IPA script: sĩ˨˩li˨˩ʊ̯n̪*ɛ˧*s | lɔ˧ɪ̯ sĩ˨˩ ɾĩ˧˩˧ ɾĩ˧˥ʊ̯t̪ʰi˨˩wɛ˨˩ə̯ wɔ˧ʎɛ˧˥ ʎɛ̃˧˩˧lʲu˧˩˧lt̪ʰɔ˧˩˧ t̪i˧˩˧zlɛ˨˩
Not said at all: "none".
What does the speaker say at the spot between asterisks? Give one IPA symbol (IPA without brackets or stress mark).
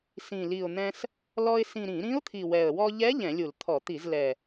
ɛ̃˧